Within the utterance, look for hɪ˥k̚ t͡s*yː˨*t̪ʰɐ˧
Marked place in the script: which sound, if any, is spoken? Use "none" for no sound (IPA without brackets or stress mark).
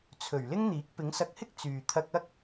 yː˨